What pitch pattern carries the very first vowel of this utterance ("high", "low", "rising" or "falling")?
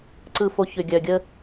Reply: low